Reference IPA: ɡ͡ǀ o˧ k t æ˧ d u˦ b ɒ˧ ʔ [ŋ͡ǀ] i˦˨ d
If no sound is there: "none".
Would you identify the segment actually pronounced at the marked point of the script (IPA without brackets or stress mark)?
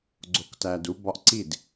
ǀ